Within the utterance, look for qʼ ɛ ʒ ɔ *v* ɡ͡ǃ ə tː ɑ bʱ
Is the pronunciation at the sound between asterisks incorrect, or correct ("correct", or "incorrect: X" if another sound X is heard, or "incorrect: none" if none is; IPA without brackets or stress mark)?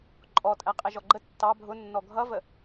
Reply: incorrect: none